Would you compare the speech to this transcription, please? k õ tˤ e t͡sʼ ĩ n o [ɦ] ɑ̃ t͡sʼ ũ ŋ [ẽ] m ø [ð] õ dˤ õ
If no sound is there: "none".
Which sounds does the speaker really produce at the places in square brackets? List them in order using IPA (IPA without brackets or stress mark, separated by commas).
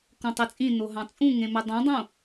ɦ, ẽ, dˤ